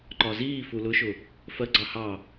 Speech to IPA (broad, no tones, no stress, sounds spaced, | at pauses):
ǃ ɒ z iː f u l ʊ ʃ ʊ | f ɜ ɡ͡ǀ ɑ h ɑ